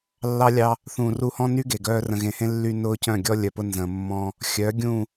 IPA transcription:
lː ɑ˦ lʲ ɑ˦ | θ ũ˨ r u˦ h ɔ̃˦ n y˦ ɡ e˨ ɡ œː˦ r ə̃˨ ɣ ẽ˨ h ẽ˦ lː y˦ n ʊː˦ c œ̃˦˨ ɡʲ ɔ˦ lʲ œ˨ p ʊ˦ n z ə̃ː˨ mː ɔ̃˦ | xʲ œ˨˦ ɡʲ ũ˦˨

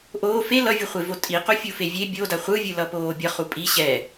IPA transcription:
ʔ oː f e l ʌ vʲ u χʷ e v o tʼ i q o fʲ u f e vʲ e bʲ o d a χʷ ɯ vʲ ɯ l ʌ p oː bʲ ʌ χ u pʼ i ɕ ɛ

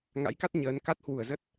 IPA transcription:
ŋ a̰˧˥ j k a˦˥ t̚ ɲ əː˨˦ n k a˦˥ t̚ h w u˧˩ ə̯ z ə˦˥ t̚

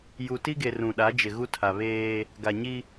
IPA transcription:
j u˨ t i˦ ɡ e˨ r ũ˨ ɗ a˨˦ d͡ʒ ɪ˨ ɣ u˦ tʰ a˨ β eː˦ | ɡ a˨ ɲ i˦

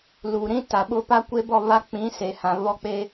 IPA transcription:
l u˨ ɾ ĩ˦ t a˨ ɓ ʊ˦ p a˦ kʷ e˦ b ɔ˦˨ β a˦ k͡p ĩ˨˦ s e˨ h ã˨ β ɔ˦˨ k͡p e˦

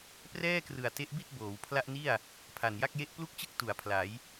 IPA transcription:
p r ɛː˥˩ k r ɯ˨˩ a̯ t e˦˥ ʔ b i˥˩ t̚ b oː˩˦ w pʰ l a˥˩ ʔ n i˥˩ a̯ | pʰ a˨˩ n j a˥˩ k̚ j e˦˥ ʔ p l u˥˩ k̚ t͡ɕ ɯ˥˩ k̚ t u˨˩ a̯ pʰ l a˩˦ j

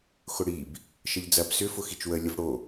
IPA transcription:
x ʊ ɽ i b | ʃ ə ʎ d͡z ɐ b s ʏ f ʊ x i t͡ʃ w ə lʲ ʊ v ɽ o

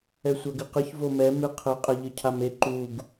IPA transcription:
ɛ sʷ a ɡ ɨ q ɨ ç v o m ɛ m ɨ qʰ ɘ qʼ e ʎ ɨ cʰ a m e ǃ u ɡ

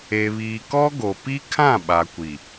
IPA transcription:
e˨ β iː˨ k ɔ˦ ɡ o˨ p i˦ kʰ ã˦˨ ɓ a˨ kʷ i˨

